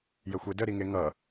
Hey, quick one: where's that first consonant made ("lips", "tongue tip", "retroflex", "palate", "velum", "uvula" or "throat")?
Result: palate